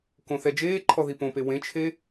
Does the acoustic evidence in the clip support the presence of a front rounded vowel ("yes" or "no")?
no